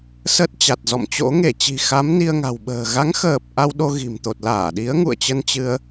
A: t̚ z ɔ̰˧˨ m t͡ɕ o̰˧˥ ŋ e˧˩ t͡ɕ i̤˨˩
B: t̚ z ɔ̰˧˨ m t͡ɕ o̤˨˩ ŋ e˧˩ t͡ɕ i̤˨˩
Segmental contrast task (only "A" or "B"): A